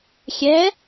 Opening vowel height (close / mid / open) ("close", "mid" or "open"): mid